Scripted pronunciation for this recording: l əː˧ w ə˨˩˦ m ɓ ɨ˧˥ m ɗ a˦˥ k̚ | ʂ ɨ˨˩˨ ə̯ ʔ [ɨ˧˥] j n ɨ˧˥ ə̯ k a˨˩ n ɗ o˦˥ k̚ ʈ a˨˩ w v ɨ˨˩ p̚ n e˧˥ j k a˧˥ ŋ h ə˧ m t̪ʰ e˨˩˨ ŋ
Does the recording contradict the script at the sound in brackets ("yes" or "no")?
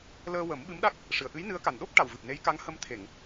no